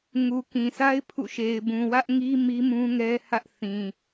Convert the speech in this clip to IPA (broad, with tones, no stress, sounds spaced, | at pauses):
ŋ u˨ k ĩ˨ sʰ a˦ ɪ̯ pʰ ṵ˦˨ ʃ e˨ ɪ̯ b ũ˨ w ä˦ ʔ ŋ i˦ m i˦ m ũ˦ ŋ ɛ˦ h ä˦ ʔ θ ĩ˨